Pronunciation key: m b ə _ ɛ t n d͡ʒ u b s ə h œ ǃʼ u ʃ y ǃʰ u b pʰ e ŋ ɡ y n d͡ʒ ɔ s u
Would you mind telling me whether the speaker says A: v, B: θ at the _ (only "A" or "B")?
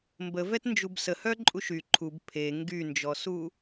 A